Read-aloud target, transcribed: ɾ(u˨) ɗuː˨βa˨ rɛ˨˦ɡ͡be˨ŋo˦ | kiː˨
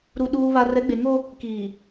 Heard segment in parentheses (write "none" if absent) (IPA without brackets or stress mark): u˨